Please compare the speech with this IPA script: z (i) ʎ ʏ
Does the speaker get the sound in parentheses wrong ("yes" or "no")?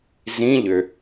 yes